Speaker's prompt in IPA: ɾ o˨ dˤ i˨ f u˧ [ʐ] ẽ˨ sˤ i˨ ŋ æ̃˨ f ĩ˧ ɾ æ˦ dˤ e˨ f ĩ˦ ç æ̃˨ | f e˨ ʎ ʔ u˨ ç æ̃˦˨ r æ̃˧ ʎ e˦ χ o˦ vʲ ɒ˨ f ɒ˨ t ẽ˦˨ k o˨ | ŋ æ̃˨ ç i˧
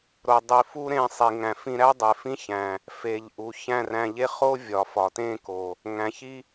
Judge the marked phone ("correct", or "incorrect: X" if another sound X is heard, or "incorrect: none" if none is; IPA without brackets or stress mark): incorrect: ɾ